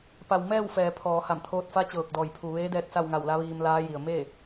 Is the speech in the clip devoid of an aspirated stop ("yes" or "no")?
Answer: no